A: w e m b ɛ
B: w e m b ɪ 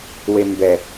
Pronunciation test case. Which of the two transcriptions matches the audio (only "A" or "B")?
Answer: A